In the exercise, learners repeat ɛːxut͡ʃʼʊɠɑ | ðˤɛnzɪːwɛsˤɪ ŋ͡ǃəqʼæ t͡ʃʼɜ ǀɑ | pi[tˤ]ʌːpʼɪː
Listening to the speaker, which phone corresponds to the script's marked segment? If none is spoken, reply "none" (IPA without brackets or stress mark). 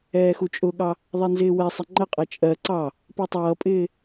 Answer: tˤ